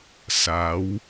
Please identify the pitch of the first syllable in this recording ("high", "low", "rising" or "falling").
rising